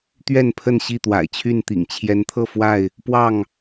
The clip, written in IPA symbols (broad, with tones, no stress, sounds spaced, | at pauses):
t̪ ɥ ɛ˥˨ n pʰ ə˥˨ n ɕ i˥˨ t̪ w a̰˨˩ ɪ̯ t͡ɕʰ y˥˨ n t̪ ḭ˨˩ ŋ t͡ɕʰ j ɛ˨˦ n t̪ʰ ɤ˥˨ f w a˥˨ ɪ̯ | p w ɑ˥˨ ŋ